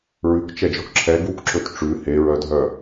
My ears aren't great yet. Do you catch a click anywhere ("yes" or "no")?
yes